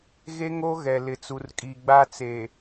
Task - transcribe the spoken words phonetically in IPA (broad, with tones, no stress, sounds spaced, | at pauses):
ɣ e˦ ŋ o˦ ɣ ɛ˨ l ɪ˨ t͡s u˨ r kʼ i˨ ɡ͡b a˦ t͡s e˨